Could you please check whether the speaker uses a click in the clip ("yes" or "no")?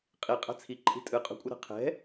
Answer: yes